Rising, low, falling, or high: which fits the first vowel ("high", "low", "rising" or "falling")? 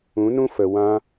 rising